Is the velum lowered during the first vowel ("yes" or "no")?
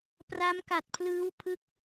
no